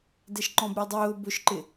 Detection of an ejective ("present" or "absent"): absent